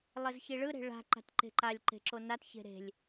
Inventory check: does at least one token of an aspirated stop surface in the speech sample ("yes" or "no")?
no